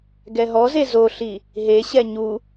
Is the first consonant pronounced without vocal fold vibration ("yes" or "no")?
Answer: no